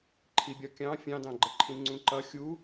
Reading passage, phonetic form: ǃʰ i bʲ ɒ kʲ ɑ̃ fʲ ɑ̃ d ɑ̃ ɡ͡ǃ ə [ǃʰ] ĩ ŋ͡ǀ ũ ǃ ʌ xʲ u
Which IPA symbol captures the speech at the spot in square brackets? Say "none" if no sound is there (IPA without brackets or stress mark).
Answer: ǃʰ